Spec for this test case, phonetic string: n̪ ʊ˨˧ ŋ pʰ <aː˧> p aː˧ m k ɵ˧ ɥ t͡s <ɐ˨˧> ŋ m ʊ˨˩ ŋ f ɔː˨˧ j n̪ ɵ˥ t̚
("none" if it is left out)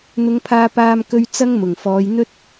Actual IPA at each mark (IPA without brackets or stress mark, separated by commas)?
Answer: aː˧, ɐ˥